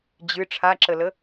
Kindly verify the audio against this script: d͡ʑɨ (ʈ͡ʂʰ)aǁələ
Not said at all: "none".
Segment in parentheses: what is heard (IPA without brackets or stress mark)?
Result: ʈ͡ʂʰ